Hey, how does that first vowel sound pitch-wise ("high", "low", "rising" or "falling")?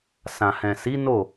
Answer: low